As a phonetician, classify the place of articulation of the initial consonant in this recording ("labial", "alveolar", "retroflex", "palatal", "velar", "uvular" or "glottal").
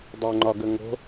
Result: alveolar